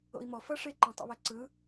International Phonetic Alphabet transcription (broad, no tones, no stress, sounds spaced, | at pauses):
o̰ i̯ m ɔ f ʌ ʂ e ǃ ɛ̃ tˤ o̰ β ɛ ǀ ɯ